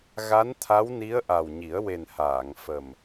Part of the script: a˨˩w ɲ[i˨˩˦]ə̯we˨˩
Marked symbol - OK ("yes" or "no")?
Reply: yes